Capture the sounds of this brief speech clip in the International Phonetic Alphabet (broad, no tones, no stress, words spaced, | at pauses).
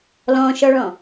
lɔ̃ʃɔɭɔ̃